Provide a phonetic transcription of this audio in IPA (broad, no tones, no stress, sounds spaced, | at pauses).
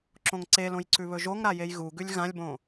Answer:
ǁ õ ŋ ǀ e l õ j ǀ ʉ β ɵ ʒ o ŋ ɾ a j e j ɣ u ɡ ʉ lʲ ɣ ã lʲ b õ